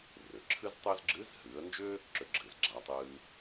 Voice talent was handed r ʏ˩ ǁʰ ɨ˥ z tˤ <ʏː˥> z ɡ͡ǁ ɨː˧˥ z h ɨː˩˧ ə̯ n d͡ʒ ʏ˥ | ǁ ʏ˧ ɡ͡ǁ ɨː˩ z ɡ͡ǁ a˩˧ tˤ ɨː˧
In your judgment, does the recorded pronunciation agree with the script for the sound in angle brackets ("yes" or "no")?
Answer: yes